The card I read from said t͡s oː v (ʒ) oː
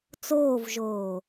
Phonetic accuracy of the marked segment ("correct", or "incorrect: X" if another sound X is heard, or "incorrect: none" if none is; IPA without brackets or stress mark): correct